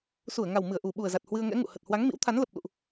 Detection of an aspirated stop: present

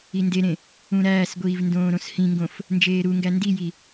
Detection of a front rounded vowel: absent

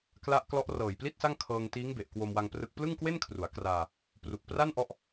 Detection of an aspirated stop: present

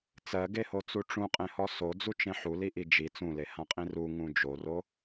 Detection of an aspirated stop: absent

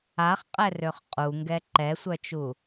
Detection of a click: present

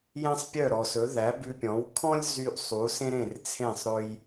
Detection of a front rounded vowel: present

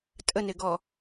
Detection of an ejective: present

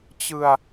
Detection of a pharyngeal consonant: absent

